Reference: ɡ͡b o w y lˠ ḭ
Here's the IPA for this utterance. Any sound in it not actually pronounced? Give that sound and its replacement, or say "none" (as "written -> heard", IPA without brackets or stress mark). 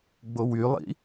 none